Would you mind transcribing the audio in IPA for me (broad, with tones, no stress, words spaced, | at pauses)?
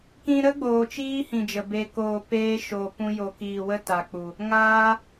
kĩ˧ɾə˦ɡ͡boː˨ t͡ʃiː˦hĩ˨d͡ʒə˨ be˨koː˨ peː˧ʃo˨ pũ˧jo˨kiː˨wə˦ ta˨k͡pu˨ | ŋaː˦